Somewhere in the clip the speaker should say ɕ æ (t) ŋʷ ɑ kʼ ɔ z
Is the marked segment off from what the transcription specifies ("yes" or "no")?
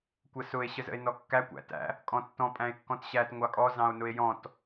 no